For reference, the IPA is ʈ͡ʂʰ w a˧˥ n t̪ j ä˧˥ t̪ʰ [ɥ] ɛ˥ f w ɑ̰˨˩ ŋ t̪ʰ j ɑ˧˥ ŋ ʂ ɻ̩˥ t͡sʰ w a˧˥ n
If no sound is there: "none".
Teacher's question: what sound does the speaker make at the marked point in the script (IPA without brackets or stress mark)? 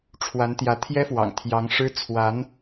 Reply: j